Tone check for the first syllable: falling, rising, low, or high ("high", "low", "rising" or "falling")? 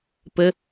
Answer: high